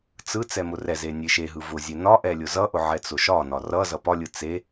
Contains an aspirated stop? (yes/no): no